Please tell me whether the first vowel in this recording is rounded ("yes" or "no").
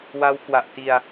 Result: no